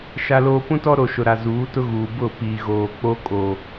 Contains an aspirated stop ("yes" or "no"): no